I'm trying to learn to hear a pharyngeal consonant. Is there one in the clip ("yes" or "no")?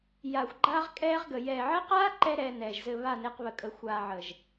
yes